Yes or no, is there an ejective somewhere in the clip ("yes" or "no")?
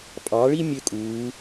yes